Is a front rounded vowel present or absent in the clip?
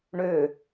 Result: present